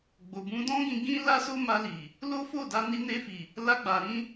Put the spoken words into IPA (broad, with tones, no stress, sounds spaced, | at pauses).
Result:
ɡ͡b o˨ b ũ˧ d ɔ̃˦ ɡ ĩ˧ ɡ ĩ˦ l a˦ s o˦ m a˧ l i˨ | l o˦ f o˦˨ d a˧ n i˧ n e˧ f i˨ | l a˧ ɡ͡b a˨ ɾ ĩ˧